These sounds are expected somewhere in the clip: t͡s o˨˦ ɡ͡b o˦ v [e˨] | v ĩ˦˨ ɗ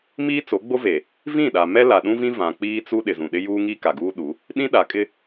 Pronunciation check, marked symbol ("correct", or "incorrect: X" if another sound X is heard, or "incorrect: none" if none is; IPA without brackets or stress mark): correct